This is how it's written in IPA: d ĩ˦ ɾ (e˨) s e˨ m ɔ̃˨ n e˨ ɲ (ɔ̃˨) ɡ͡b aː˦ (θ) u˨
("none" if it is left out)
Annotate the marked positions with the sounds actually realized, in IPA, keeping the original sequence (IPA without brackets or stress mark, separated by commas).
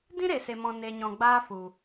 e˨, ɔ̃˨, f